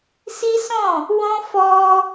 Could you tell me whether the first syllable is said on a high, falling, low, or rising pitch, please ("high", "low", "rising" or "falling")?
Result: high